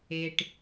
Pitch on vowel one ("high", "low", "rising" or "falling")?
low